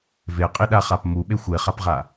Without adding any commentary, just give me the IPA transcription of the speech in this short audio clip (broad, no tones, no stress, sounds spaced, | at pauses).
v e qʼ i ɗ a χ a p m u ɓ e xʷ e χ a p ʁ a